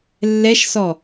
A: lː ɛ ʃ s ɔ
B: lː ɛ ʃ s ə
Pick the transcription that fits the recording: A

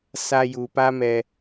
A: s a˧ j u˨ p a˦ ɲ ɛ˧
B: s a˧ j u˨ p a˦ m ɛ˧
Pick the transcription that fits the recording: B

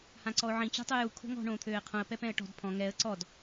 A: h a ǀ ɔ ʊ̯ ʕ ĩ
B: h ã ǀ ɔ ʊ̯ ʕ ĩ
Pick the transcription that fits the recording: B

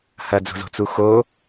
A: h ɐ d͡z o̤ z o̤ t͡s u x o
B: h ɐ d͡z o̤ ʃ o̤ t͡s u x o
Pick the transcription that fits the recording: A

